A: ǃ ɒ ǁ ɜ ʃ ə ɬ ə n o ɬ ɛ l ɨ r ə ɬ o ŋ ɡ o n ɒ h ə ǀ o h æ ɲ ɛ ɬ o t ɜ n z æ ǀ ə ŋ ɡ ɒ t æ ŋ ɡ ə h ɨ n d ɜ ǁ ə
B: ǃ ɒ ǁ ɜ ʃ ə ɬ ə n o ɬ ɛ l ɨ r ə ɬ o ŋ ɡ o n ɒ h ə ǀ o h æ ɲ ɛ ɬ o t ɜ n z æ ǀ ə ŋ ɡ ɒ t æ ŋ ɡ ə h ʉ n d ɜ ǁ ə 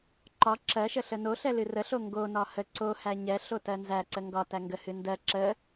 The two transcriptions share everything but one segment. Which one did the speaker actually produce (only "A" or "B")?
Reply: A